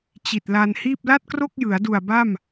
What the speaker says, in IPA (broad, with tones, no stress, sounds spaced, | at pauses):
t͡ɕ i˨˩ t̚ l a˧ n h iː˥˩ p̚ l a˥˩ t̚ k r o˥˩ k̚ j ɯ˩˦ a̯ d u˨˩ a̯ b a˥˩ m